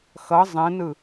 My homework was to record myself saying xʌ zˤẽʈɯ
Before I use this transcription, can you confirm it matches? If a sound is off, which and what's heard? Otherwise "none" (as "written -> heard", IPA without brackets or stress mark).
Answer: ʈ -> n